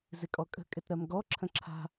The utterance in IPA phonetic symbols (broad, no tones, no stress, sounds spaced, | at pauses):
z ɪ kʼ ɔ kʼ ə̤ kʼ ɪ t ɾ ɜ m ɡ ɔ ǁʰ ə̃ ǁʰ a̤